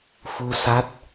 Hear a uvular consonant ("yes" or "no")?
no